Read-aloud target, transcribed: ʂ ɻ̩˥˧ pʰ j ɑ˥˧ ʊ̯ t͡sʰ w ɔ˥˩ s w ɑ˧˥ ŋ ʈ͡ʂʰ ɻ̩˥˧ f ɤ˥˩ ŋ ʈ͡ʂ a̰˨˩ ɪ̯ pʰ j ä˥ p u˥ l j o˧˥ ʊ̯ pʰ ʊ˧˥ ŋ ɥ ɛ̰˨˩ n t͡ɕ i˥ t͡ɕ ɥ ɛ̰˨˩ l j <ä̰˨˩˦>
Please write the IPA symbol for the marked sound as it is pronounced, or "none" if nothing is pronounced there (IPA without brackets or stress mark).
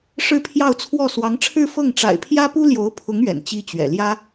ä˥